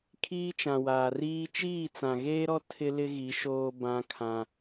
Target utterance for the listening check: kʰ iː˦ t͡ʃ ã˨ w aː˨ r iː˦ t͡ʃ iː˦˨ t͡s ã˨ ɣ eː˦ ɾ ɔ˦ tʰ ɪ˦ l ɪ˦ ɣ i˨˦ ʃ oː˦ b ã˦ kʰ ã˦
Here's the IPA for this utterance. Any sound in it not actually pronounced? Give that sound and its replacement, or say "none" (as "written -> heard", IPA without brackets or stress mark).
none